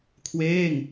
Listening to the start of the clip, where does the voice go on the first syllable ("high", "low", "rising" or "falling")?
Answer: falling